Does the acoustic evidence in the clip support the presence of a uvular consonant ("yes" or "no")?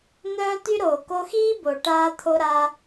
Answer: no